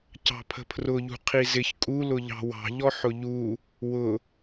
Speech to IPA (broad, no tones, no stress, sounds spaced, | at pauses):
c ɑ̤ pʰ ə̤ pʰ r ʊ ʎ ṳ qʰ i z ɪ ç kʼ u l ʊ ʎ ɑ̤ w ɑ̤ ʎ ɔ ħ ʊ ʎ u | w ʊ